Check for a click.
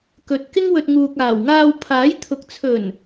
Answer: absent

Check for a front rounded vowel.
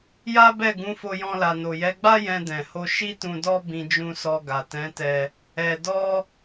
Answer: absent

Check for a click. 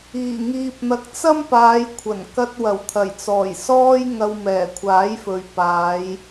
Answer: absent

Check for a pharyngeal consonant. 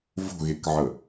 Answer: present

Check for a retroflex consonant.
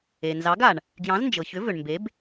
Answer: present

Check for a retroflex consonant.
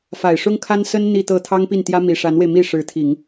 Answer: present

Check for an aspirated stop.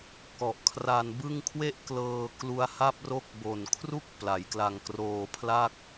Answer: present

